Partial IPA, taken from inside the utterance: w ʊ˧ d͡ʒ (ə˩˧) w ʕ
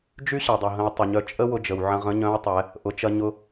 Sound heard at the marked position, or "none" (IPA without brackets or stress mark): ə˩